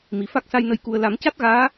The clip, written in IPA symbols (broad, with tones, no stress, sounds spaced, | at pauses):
m i˨˩ f a˦˥ k̚ s a˧ j n ə˧ j k u˨˩ ə̯ l a˨˩˦ m c a˦˥ t̚ ɣ aː˧˥